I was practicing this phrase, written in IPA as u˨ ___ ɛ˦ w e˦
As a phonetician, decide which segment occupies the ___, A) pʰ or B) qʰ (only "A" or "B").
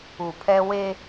A